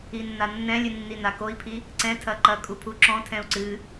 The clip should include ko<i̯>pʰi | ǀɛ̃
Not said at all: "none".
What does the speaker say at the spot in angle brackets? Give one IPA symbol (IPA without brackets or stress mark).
i̯